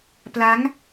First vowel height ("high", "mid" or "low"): low